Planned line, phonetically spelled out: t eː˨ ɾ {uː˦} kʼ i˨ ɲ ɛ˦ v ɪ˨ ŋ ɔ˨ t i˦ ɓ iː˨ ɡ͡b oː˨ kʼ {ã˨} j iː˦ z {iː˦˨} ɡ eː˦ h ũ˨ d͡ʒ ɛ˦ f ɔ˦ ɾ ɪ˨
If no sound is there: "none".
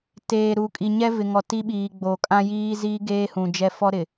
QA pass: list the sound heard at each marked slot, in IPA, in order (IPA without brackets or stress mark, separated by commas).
uː˨, ã˦, iː˦